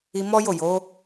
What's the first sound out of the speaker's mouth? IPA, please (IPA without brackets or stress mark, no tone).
i